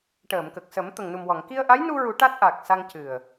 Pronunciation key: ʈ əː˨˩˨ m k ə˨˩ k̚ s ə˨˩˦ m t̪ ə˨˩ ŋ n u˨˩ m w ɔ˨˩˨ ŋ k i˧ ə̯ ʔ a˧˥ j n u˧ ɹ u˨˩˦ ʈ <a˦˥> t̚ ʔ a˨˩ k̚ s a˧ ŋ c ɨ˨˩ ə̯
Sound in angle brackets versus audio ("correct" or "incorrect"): correct